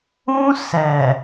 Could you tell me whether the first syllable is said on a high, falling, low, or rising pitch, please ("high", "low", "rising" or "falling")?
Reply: high